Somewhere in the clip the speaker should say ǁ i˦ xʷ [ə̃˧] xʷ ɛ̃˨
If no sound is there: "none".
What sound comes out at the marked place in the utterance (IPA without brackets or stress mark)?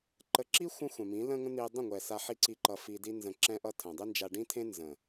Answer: ə̃˦